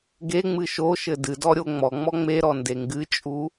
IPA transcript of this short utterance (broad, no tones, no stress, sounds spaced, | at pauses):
ɡ e ŋ͡m ɨ ʃ o ʃ ɘ d ɨ d ɔ ɾʲ o ŋ͡m ɔ ŋ͡m ɔ ŋ͡m e ɾ ɔ n d e ŋ ɡ ɨ t͡ʃʼ u